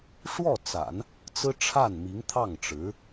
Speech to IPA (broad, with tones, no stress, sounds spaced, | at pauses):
ʂ w ɔ˥˩ t͡s a̰˨˩˦ n | t͡s ɹ̩˥ ʈ͡ʂʰ a˥˩ n m i˧˥ ŋ t̪ʰ ɑ˥˩ ŋ ʈ͡ʂ ɻ̩˧˥